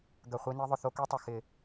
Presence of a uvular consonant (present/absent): present